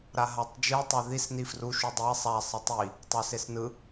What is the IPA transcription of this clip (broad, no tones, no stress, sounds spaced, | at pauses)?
ɾ a ɦ a tˤ d͡ʒ ɯ tˤ ɛ ð i s n i f r u ʃ u dˤ e sˤ a sˤ ɯ tˤ i | tˤ ʌ s e s n ɯ